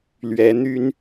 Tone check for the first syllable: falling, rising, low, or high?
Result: rising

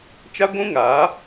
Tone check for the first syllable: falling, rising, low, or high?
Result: high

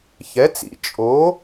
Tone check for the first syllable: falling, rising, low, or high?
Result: rising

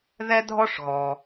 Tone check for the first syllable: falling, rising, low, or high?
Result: high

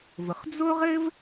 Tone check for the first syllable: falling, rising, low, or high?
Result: low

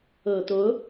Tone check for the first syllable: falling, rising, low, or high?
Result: low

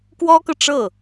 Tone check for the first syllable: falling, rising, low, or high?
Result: high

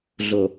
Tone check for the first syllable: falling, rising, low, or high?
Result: low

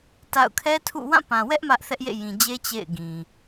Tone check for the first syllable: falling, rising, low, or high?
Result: falling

